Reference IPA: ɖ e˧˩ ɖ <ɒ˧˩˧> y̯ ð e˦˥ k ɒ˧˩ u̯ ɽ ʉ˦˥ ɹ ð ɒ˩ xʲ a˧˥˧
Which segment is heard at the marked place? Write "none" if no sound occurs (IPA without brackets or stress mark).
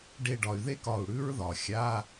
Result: ɒ˩